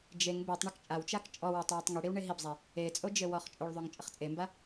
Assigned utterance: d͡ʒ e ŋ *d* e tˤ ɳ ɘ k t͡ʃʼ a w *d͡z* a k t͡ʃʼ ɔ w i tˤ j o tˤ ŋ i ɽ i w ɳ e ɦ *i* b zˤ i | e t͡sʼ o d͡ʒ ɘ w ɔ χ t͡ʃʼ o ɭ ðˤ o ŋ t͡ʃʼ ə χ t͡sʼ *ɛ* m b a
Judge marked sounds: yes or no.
no, no, yes, no

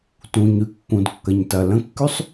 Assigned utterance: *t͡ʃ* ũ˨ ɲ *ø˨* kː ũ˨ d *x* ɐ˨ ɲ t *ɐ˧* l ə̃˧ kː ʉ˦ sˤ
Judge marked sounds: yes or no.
no, no, no, no

